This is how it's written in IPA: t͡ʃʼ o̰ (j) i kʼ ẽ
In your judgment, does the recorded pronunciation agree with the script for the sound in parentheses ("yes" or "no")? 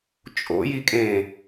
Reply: yes